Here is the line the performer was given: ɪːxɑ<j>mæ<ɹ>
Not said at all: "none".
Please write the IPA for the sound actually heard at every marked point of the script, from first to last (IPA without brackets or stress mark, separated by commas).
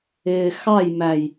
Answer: j, j